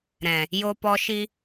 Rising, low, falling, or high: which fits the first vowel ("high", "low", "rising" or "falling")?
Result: low